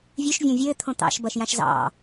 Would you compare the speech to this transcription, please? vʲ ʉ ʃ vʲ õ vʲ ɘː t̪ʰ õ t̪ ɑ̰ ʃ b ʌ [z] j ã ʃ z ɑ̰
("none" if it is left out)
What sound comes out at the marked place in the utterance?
ʃ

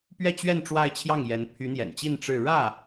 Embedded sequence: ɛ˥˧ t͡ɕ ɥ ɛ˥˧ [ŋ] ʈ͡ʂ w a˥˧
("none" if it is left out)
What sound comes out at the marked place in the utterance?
n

